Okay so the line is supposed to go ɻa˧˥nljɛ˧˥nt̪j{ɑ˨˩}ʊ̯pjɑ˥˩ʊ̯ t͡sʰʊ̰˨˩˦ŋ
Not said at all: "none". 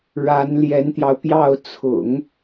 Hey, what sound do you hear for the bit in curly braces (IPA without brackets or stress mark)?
ɑ˧